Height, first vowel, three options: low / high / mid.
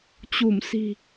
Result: high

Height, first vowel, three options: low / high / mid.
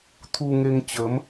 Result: high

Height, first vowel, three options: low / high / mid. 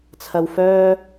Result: low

